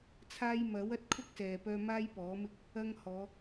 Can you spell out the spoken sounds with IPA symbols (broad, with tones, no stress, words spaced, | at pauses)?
t͡sʰaː˧jmɐ˨˥wɐ˧t̚ kʰʊ˥k̚sɛː˨pœː˧ maː˥jpɔː˨˥mɪ˥k̚ | ɐ˧ŋhɔː˨˧